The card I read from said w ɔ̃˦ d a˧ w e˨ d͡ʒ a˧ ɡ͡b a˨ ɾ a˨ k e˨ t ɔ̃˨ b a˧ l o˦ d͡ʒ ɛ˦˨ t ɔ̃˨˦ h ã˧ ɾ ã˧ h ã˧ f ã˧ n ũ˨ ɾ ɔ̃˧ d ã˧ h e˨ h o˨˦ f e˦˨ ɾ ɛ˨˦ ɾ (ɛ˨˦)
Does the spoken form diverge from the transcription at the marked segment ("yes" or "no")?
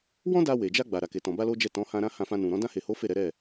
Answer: yes